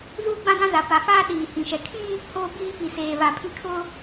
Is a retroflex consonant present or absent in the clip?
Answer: absent